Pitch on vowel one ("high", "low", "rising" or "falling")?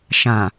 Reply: low